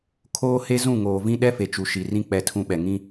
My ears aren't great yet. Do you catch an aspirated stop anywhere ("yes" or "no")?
yes